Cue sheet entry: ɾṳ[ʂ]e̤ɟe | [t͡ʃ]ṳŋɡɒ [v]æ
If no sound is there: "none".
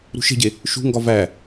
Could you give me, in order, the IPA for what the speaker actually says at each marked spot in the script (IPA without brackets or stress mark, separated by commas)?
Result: ʃ, ʃ, v